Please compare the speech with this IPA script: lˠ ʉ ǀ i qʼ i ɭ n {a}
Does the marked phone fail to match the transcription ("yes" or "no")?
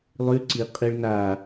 no